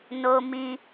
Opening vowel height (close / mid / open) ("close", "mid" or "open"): mid